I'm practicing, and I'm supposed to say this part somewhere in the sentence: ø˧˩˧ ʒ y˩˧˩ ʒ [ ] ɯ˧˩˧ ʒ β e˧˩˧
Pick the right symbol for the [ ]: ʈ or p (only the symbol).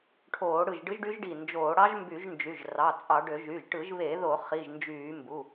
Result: ʈ